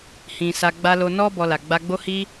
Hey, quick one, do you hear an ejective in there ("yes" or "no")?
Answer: no